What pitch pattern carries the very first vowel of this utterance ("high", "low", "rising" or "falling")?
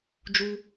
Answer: high